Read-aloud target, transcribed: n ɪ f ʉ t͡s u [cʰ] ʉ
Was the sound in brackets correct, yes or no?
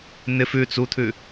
no